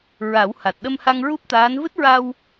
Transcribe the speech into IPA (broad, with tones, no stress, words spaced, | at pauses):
ɹa˨˩˦w ha˨˩t̚ɗə˧mha˧ŋ ɹu˦˥p̚t̪aː˧˥n vɨ˦˥t̚ɹa˧w